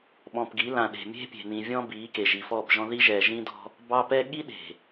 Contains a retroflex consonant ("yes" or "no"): no